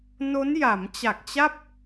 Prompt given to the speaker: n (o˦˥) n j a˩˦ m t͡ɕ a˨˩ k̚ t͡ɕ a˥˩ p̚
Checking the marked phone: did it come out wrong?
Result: no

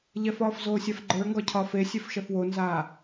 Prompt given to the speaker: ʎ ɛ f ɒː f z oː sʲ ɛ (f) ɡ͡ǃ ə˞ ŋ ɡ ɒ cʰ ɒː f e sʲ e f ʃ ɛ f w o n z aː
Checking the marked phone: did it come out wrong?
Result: no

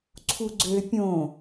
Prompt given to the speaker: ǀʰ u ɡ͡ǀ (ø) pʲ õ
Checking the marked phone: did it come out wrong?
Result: no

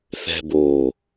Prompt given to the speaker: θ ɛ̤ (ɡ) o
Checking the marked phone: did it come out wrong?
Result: yes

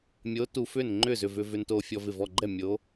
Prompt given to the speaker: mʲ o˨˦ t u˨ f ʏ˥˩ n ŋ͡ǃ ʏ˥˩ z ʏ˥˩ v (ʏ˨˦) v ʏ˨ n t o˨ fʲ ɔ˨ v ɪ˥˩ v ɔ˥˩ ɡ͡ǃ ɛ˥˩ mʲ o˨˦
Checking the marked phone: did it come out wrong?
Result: yes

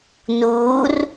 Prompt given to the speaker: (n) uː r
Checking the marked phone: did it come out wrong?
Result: no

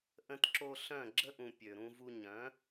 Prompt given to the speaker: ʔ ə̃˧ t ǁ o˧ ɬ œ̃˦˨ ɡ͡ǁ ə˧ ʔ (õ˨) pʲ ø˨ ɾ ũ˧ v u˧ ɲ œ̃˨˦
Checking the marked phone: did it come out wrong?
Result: yes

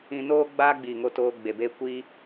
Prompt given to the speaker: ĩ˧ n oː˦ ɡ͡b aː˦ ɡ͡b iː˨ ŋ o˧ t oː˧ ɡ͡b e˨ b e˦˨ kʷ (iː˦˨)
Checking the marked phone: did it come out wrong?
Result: yes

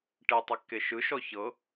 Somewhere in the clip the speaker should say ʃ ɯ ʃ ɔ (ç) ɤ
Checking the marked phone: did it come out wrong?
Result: no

